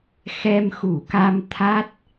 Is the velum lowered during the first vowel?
no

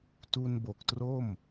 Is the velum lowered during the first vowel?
no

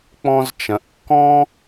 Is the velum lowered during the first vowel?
yes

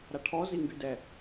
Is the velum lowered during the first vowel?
no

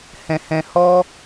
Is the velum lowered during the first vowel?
yes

